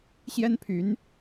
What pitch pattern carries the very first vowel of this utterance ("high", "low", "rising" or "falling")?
high